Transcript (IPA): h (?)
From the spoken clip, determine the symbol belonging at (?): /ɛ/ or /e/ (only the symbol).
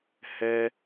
ɛ